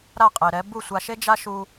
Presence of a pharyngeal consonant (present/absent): absent